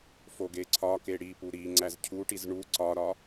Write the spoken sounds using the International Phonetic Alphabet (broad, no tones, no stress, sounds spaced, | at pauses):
f o ɡ e ǀʰ ɒ k e ɽ i p u ɾ i ŋ͡ǀ æ z cʰ u ʈ i z ɳ u ǀ ɒ ɾ ɒ